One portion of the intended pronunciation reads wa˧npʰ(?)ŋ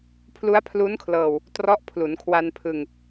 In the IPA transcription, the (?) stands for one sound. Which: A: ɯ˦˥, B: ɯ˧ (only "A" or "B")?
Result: B